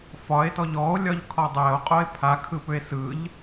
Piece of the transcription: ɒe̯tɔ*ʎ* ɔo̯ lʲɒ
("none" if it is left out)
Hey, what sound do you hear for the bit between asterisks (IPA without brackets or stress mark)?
ʎ